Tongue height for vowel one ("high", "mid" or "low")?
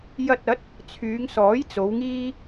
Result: low